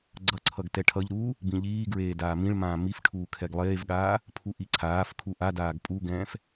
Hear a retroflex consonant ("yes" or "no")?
yes